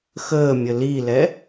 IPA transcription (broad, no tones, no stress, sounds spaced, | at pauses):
x əː mʲ ə l i l ɛ